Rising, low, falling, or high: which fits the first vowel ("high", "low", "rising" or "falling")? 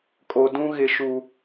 low